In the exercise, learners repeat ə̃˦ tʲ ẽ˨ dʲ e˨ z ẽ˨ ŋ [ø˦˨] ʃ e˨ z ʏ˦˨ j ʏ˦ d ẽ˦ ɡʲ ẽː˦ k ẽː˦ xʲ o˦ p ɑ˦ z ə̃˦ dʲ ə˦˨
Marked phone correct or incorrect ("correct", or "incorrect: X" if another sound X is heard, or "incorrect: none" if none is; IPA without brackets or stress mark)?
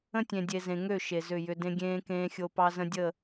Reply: correct